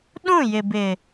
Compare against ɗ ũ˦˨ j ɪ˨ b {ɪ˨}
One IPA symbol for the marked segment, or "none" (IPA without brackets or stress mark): ɪ˨